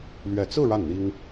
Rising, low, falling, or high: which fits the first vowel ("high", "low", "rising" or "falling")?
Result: low